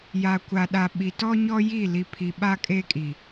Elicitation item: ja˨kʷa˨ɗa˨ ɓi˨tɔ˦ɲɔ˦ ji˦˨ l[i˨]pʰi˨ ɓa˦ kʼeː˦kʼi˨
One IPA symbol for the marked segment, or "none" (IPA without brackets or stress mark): i˨